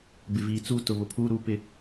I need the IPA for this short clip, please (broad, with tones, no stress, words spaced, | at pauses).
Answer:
bɪ˨viː˨t͡suː˦ tʊ˨βʊ˨ pʰuː˦ɾuː˦ pɪ˦